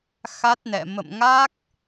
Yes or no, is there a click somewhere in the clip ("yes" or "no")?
no